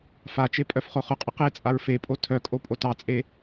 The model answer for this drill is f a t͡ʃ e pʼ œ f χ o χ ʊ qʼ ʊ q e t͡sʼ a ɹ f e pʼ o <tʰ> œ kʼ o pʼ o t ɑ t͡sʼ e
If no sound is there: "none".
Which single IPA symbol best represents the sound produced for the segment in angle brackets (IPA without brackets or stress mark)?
tʰ